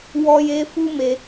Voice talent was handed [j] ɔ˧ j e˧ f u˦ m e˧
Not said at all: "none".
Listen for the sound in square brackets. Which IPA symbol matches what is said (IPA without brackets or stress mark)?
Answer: w